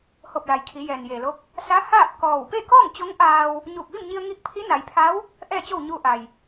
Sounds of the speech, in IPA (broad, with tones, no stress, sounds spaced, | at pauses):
h o˧˩ p̚ l a˩ j kʰ i˩˧ j ɛː˩ n j eː˩ l o˧˥ k̚ | s a˧˥ h aː˥˨ p̚ k ɔː˧˩ w p e˥˨ k ɔː˥˨ ŋ t͡ɕ o˧˥ ŋ ʔ aː˧ w | ɲ uː˧˩ k̚ ʋ i˥˨ m ɲ i˧ ə̯ ŋ i˧˥ k̚ pʰ i˧˥ n a˩˧ j pʰ a˧˥ w | ʔ ɛː˥˨ t͡ɕ o˥˨ w ɲ uː˧ ʔ a˩ j